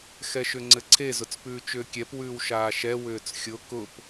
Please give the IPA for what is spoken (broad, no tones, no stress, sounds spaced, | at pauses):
x ɛ ʃ ʏ ŋ͡ǀ ɘ ǀʰ e z ʊ t͡s p ʉː t͡ʃ ʏː kʲ ɛ p w ʉː w ʃ aː ʃ ɛ w ʏː t͡s xʲ ʊ k ʊ p